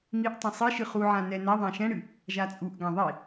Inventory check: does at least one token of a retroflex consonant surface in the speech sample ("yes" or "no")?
yes